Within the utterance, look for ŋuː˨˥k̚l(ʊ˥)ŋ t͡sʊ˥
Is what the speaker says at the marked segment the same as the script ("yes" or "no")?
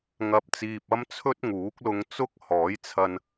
no